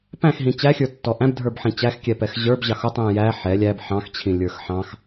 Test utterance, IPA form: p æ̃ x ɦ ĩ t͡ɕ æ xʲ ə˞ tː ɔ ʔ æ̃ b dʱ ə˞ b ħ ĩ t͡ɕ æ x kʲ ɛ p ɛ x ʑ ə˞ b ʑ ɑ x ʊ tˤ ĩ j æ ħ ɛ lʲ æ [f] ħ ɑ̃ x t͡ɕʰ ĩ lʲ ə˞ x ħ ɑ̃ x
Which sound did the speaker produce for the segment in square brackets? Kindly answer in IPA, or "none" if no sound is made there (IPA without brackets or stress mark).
b